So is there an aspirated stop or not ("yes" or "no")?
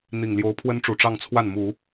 yes